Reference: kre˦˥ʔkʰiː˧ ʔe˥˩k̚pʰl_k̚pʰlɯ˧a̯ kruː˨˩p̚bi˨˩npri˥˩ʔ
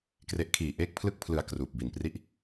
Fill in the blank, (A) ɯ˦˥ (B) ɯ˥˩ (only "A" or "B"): B